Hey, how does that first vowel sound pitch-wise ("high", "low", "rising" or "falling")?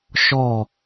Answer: falling